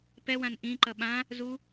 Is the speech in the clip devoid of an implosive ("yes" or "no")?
no